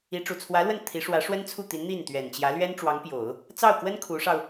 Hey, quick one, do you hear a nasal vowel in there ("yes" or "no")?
no